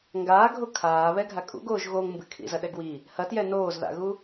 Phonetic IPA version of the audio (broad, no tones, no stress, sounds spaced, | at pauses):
ŋ ɡ aː ɡʱ o kʰ aː β ɛ ɡʱ a kʼ ṵ ɡ oː ʒ ɣ o ŋ m b ɨ kʰ ḭ z ɐ ɗ ɛ ɡ w i | h ɐ t j ɛ n oː z ð a̰ ɣ u